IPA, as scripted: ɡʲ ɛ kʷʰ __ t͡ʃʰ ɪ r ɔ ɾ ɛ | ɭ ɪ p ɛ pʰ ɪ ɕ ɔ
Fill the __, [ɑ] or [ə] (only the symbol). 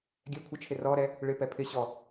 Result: ə